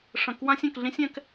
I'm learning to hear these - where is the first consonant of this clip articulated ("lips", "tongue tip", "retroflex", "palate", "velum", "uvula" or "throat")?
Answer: retroflex